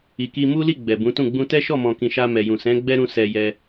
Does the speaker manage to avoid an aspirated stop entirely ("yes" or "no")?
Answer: yes